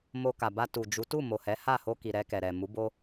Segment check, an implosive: absent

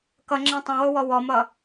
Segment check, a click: present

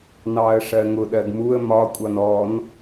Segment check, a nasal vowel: absent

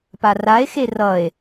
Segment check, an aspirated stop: absent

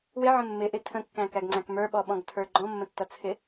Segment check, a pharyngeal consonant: present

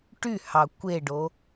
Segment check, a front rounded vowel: present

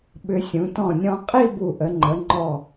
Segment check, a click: present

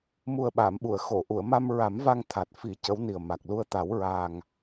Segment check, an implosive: present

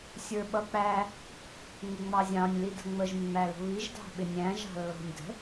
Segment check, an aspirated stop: absent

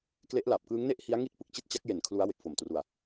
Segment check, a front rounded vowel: absent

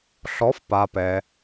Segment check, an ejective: absent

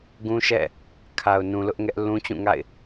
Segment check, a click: absent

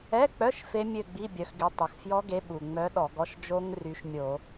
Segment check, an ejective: absent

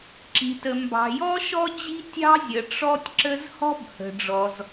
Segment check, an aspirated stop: absent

